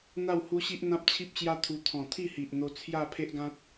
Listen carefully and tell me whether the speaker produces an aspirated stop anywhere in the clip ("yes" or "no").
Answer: yes